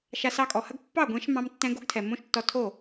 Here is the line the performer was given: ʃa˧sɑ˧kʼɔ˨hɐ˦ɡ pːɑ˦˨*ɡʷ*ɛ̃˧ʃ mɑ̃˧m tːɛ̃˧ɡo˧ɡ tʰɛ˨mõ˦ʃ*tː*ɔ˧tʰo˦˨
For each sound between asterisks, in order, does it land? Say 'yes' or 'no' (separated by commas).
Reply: yes, yes